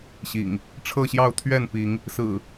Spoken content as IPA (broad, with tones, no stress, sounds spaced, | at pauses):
ɕ ḭ˨˩ ŋ | ʈ͡ʂʰ ɤ˥˨ ɕ j ɑ˥˨ ʊ̯ t̪ʰ ɥ ɛ˥˨ n p i˨˦ ŋ | s ɹ̩˨˩